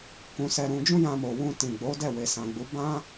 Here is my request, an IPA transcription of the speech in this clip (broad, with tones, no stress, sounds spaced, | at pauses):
k ũ˧ s ɛ˧ ɾ ũ˧ d͡ʒ ũ˦ j ã˧ m o˨ w ũ˧ t ĩ˨ ɡ͡b o˨˦ d ɛ˦˨ w e˨ s ã˨ ɡ͡b u˨˦ b ã˦